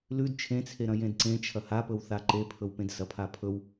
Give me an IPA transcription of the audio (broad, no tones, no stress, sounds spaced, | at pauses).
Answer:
l ʉ d t͡ʃʰ ẽ t͡sʰ e ɾ ɐ̃ j ẽ d ǀ ẽ t͡ʃʰ ɐ h a p ɵ w θ a ǃ e pʰ ɵ w p ẽ d s ɐ pʰ a pʰ ɵ w